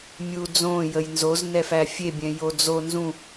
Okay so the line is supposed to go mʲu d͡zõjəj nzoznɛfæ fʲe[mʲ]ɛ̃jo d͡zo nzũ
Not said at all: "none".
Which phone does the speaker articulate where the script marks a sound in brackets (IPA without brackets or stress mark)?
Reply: bʲ